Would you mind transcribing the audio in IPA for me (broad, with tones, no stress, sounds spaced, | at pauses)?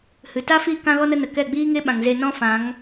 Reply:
h ɨ˨ t a˦ f i˦˨ k ã˦ ɣ ɔ˦ n ə˦ n ə˨ k ɛ˦˨ ɡ͡b iː˦ ŋ e˦ ɓ ã˨ ŋ z e˧ n ɔ̃˦ f ã˨˦ ŋ